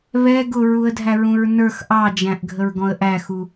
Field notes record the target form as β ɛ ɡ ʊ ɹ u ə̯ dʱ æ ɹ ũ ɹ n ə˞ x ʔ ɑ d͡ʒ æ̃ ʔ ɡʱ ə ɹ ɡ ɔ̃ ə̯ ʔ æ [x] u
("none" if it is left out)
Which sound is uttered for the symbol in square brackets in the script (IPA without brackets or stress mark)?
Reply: x